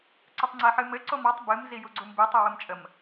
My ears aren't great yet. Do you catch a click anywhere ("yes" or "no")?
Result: yes